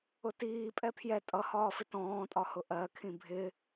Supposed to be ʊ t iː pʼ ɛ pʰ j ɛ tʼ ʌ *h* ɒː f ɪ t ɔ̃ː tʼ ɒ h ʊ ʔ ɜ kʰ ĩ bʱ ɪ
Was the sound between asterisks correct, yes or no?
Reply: yes